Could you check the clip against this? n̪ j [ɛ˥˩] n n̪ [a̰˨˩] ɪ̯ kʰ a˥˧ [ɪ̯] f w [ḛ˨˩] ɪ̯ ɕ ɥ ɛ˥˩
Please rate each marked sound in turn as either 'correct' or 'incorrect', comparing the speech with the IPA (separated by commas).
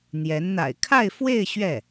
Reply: incorrect, correct, correct, incorrect